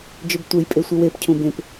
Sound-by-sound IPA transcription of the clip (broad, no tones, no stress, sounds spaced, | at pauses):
d͡ʒ ø b tʷ e j pʼ e sʷ e w e p cʰ ũ b ẽ p